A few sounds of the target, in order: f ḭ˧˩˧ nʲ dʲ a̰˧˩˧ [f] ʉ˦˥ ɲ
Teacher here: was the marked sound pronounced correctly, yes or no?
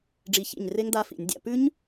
no